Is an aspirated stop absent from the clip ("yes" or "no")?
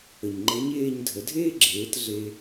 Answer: yes